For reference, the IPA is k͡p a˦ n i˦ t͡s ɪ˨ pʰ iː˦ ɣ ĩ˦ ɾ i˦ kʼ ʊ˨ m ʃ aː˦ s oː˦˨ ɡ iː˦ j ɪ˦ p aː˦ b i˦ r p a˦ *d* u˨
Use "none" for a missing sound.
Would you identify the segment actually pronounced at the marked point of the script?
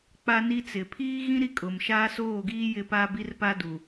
d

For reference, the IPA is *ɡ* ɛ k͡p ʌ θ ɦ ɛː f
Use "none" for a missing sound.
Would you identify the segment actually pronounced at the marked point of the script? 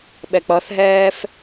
ɓ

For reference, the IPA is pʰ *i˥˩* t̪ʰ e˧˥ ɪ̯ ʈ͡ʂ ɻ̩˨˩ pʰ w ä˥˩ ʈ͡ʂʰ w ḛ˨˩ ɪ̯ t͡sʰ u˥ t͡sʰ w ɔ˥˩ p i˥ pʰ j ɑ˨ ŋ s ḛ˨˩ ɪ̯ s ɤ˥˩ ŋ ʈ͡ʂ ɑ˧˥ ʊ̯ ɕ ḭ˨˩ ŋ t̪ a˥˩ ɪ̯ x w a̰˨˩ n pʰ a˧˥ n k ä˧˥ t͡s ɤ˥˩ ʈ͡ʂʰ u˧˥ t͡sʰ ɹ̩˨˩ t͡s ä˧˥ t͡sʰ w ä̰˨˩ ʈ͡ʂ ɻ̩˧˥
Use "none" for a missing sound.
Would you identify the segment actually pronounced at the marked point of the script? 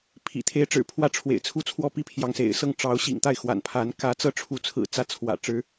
ḭ˨˩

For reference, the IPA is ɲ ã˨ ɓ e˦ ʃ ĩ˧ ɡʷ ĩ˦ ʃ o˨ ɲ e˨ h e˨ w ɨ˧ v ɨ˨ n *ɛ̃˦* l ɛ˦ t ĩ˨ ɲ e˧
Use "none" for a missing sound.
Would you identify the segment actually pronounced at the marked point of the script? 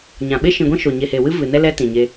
ɛ˦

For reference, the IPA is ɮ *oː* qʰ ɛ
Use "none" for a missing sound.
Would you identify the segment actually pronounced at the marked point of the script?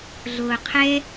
oː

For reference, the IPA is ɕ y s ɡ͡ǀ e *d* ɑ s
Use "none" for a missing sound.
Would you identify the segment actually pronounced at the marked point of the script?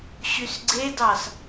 d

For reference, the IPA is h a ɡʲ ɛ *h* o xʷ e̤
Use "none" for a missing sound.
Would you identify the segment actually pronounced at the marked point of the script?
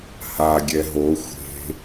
ɦ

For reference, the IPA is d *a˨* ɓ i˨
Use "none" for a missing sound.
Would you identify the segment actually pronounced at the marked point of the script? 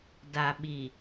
a˨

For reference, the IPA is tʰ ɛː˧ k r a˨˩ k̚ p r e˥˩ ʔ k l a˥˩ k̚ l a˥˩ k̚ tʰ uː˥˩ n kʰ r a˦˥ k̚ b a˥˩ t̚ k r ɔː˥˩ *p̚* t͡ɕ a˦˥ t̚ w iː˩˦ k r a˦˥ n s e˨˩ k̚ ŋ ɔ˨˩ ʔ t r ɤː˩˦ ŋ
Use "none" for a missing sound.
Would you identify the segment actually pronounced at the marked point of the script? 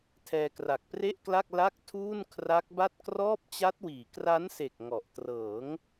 p̚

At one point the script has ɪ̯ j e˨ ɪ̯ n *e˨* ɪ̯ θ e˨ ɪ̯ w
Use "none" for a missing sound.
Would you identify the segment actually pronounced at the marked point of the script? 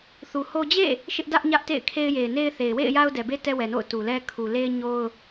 e˦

